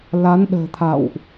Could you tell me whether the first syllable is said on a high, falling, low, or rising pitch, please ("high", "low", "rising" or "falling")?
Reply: rising